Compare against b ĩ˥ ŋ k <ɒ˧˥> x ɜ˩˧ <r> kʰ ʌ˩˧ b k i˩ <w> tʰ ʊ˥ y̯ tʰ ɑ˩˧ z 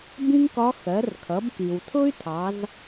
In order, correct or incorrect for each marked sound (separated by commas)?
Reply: correct, correct, correct